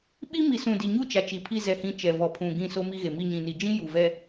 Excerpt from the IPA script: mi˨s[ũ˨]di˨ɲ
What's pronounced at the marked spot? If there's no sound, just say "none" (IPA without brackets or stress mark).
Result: ũ˨